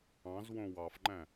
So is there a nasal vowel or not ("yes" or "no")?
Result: yes